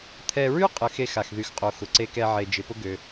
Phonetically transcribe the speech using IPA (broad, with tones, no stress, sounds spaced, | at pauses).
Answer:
t̪ʰ ɛ˧ ɹ y˥ qʼ ə˧ x e˧ x a˩ x ð y˩ x qʼ o˩ x ʊ˩ ǀ e˧ k ɛ˧ ʕ e˩ d͡ʒ ɪ˩ p ʊ˧ ɡ ø˩